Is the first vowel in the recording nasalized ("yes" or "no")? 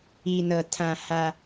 no